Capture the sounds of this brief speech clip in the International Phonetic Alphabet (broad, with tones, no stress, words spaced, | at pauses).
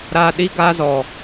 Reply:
ɾa˧ ɗi˦ ɡa˧ zɔ˨